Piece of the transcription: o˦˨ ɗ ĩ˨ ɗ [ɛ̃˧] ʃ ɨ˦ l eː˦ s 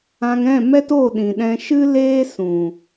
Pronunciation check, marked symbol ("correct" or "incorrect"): correct